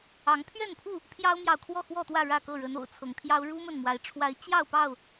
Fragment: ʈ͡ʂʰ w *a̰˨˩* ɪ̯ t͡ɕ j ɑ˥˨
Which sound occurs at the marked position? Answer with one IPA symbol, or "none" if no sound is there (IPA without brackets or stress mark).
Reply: a˨˦